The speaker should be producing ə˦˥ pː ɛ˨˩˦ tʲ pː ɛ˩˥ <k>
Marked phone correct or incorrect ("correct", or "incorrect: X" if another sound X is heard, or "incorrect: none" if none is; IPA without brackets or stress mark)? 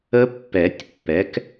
correct